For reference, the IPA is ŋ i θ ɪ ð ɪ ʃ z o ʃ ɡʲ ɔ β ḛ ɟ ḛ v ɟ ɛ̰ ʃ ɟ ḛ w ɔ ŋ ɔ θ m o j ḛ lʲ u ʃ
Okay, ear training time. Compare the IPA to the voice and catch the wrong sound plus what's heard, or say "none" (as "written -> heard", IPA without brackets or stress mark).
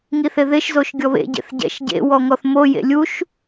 v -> θ